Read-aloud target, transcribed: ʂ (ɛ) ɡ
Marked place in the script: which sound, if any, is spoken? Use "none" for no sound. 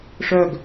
œ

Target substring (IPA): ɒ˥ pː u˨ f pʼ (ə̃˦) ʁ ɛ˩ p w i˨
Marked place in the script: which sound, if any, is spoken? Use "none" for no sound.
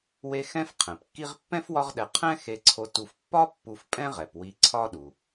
ɛ̃˦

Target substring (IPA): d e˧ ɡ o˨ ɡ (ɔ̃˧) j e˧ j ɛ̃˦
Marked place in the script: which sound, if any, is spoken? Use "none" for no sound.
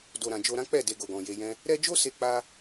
ɔ̃˨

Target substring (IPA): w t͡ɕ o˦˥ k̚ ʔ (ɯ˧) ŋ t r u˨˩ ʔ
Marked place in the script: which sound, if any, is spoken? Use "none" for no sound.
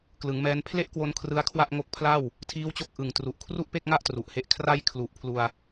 ɯ˨˩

